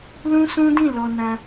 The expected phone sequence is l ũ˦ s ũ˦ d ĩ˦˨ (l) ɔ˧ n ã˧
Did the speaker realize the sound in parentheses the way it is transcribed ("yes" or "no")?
yes